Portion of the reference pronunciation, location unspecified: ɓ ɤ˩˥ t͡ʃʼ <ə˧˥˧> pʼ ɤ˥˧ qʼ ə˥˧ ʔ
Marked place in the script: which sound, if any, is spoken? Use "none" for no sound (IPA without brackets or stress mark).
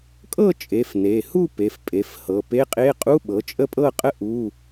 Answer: ə˥˧